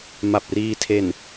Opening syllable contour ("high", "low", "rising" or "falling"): low